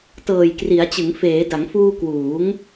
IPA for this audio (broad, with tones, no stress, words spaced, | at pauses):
tɤː˨˩jkri˩˦a̯t͡ɕɯ˩˦ŋ feː˩˦da˩˦ŋfuː˧ kwuː˩˦ŋ